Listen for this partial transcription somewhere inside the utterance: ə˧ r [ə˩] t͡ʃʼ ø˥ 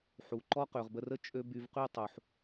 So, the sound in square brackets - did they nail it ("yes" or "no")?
no